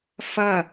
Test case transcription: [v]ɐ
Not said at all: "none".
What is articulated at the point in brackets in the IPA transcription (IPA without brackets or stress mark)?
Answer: f